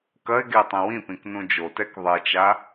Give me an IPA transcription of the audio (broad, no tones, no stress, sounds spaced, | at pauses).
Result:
k ɐ ɪ̯ ɡ e tˤ ĩ w ĩ p ĩ k n ũ d͡ʒ o t ɛ k ðˤ e t͡ʃ a